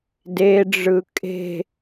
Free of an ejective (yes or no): no